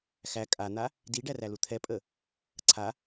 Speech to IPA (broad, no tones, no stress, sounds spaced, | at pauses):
x æ kʼ a n̪ a | d i ɖ æ r æ l u t̪ʰ ɛ pʼ ə | ǀʰ a